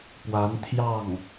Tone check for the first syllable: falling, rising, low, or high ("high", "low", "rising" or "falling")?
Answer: rising